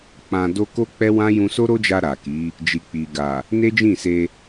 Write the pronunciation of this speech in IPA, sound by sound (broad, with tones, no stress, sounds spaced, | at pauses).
k͡p ã˧ d o˦ k o˦ k͡p ɛ˦ w ã˦ j ũ˧ s o˦ ɾ o˦ d͡ʒ a˧ ɾ a˨ k i˨˦ | d͡ʒ i˨ k͡p i˨ ɡ a˨ | n e˦ d͡ʒ ĩ˦˨ s e˧